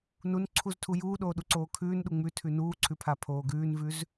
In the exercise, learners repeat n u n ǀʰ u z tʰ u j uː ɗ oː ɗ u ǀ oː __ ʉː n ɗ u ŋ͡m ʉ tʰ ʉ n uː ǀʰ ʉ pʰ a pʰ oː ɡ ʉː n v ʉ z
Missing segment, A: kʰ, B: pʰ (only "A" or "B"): A